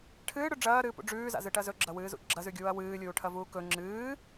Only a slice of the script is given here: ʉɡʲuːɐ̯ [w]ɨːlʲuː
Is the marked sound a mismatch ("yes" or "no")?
no